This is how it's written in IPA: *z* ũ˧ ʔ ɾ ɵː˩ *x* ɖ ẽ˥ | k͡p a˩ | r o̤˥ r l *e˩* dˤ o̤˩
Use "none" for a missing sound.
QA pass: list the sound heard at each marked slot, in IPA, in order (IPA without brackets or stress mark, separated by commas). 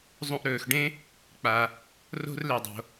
zˤ, x, e˩